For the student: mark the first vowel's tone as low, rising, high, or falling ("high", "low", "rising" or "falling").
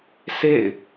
falling